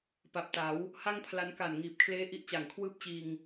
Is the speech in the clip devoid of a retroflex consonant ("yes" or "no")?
yes